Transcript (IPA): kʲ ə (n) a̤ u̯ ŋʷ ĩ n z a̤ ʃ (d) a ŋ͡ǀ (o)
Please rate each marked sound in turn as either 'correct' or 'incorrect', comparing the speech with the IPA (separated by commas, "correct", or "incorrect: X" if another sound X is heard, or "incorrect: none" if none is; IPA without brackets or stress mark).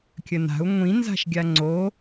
correct, incorrect: ɡʲ, correct